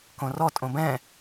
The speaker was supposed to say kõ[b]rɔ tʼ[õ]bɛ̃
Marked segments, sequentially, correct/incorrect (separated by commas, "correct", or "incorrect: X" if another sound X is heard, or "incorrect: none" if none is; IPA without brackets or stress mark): incorrect: none, correct